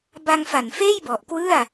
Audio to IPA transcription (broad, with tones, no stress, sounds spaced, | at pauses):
b a˧ ŋ f a˨˩ n f eː˥˩ j b ɔ˨˩ ʔ k w ɯ˥˩ a̯